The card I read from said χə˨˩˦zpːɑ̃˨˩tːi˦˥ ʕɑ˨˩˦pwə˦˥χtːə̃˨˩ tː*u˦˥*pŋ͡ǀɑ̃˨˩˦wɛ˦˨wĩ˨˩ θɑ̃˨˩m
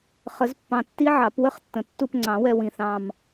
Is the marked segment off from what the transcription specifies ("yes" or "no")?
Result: yes